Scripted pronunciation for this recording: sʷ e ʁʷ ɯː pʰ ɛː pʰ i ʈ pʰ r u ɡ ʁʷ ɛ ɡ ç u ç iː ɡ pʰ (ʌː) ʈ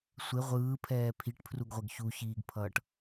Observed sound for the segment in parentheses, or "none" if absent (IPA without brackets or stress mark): ʌː